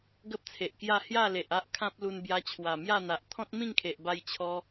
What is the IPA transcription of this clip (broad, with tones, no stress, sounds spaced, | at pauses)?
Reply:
ɡ ə˦ p̚ t͡sʰ e˨ ʔ k j a˥˧ h j a˥˧ l e˨ ʔ a˦ ʔ kʰ ã˦ p̚ l u˧ n b j a˧ t͡ɕʰ w a˨˩ m j a˥˧ n̪ a˨ ʔ t̪ʰ ɔ̃˦ t̚ m ĩ˥˧ ŋ kʰ e˨ ʔ b a˧ j t͡ɕʰ ɔ˦